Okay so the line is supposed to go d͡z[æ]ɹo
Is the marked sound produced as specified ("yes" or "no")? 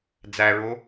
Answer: yes